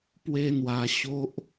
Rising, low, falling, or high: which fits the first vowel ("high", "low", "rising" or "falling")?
high